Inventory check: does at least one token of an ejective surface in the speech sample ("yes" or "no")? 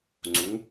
no